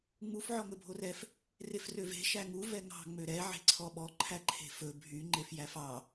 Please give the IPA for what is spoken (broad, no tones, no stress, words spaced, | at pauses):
ŋ͡muf ʕɔŋɵbʱorɛf | refrøve̤ ʃæŋu vɛŋɑ̤ ŋ͡møɾɛ ʕe̤ǀʰɔɓɔ ǃʰæǃʰe̤fɵ bʱy ŋ͡ǃefjæfɑ